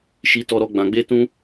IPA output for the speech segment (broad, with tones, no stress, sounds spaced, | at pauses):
ʃ i˦ t ɔ˦ ɾ ɔ˦ ɡ͡b ã˧ ɡ͡b e˦ t ũ˦